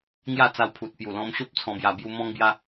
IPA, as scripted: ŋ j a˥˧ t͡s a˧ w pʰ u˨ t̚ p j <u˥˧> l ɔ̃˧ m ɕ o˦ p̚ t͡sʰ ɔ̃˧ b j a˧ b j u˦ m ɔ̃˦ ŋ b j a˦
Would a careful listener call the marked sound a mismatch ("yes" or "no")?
yes